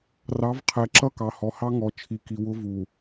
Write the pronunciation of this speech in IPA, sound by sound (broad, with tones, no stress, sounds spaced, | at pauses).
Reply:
r ɑ˨˦ v qʰ ɛ˨ ǁ ʌ˦ k ɑ˨ h ɔ˨ h ɑ˦ ŋ ɔ˨ t͡ʃʰ i˨ k i˨ w ʊ˦ v u˨